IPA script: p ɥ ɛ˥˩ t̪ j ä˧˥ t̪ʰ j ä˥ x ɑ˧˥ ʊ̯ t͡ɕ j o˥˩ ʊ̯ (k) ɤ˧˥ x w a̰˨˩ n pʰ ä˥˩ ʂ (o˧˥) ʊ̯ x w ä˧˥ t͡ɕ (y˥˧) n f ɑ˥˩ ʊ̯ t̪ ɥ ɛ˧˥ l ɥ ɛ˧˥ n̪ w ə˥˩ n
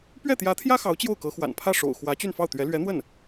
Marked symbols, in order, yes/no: yes, no, yes

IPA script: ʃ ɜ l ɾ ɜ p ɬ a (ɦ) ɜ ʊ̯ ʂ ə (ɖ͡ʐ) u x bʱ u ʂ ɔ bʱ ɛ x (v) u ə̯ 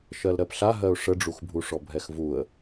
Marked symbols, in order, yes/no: yes, yes, yes

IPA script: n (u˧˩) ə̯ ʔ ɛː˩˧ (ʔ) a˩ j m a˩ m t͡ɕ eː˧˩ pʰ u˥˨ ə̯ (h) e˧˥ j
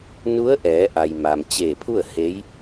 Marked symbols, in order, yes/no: no, yes, yes

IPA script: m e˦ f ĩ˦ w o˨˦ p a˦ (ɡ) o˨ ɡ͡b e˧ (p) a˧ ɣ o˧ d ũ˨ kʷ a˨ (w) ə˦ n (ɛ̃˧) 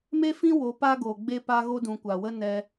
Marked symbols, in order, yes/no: yes, yes, yes, no

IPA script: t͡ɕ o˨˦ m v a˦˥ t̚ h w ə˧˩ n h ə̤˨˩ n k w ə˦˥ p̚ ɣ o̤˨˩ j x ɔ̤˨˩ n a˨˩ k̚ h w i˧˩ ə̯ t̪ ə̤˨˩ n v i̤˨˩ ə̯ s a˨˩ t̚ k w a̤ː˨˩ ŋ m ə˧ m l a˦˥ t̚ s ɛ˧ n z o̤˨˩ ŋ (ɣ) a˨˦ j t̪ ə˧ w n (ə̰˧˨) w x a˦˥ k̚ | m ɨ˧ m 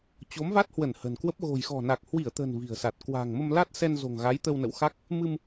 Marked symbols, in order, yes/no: yes, yes

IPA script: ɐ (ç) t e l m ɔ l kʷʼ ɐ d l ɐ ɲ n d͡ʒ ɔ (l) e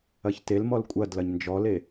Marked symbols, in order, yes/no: yes, yes

